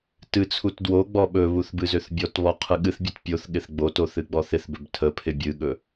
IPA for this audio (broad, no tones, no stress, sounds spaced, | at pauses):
t ɨ t͡sʰ u t d w o ɡ͡b ɔ ɓ ɵ β u θ b ɨ z ø θ bʲ ɔ t β ɔ qʰ ɨ ɠ ɨ θ bʲ ɨ t pʲ o θ ɠ ɪ θ ɡ͡b o t o θ ɨ ɡ͡b ɔ θ ɪ θ b ɵ b tʰ ə pʰ ɪ bʲ ɨ ɠ ɵ